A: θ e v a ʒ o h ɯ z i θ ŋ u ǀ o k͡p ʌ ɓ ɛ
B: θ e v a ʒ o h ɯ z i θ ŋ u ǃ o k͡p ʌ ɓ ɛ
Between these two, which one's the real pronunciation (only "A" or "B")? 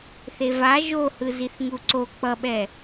A